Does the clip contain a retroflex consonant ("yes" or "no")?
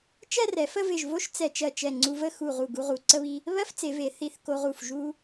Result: no